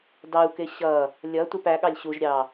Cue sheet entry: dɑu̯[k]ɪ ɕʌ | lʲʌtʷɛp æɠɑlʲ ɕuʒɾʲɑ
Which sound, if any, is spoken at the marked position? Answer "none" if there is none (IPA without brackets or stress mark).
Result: k